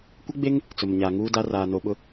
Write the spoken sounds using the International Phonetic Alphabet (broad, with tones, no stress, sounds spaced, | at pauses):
kʷ ɪ˦ ɡ͡b e˦ ŋ | t͡s ʊ˨ m ɲ a˨ ŋ uː˦ d a˦ r aː˨ n o˨ ɓ ʊ˦